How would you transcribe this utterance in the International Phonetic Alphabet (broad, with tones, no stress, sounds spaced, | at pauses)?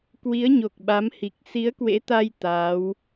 k w i˨˦ ə̯ ɲ o˨˩ k̚ ɓ a˨˦ m h i˨˩ k̚ s i˨˦ ə̯ k w ḛ˧˥ t̪ a˧ j t̪ aː˨˦ w